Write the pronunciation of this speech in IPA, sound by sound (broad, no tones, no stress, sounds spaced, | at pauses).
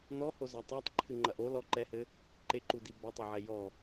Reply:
n̪ ɔ h o z a tˤ a tˤ ǃʰ ɨ ŋ͡ǃ ɐ ʔ o l ɔ ǃ ɛ h ɘ | ǃ e ǃ u d i b ɐ tˤ o ʕ ɛ j ɔ